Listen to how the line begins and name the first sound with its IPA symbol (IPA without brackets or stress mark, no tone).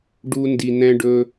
ɖ